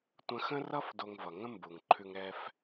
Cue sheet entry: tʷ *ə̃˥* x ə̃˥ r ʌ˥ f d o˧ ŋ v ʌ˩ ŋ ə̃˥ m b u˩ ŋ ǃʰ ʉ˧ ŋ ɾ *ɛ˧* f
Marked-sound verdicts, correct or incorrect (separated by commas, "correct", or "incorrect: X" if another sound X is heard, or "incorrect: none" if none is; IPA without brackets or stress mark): incorrect: ə̃˧, correct